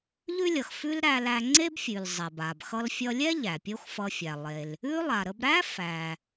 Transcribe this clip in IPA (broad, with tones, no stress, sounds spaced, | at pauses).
ʎ ʉ˥ lʲ ʌ˩ x f ʉ˥ l ɾ æ˧ l æ˧ ŋ͡ǀ e˥ b fʲ ʉ˩ l zˤ ɛ˩ b a˩ b x ʌ˥ l fʲ ʌ˧ lʲ ɛ˥ ʎ æ˩ pʲ o˥ x f ʌ˧ fʲ æ˩ lˠ e˩ l | ʉ˥ lˠ a˩ ɾ ə˧ b ɾ æ˥ f æ˩